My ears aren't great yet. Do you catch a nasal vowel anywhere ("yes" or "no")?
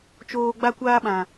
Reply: yes